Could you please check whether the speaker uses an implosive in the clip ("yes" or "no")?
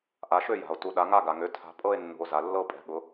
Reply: yes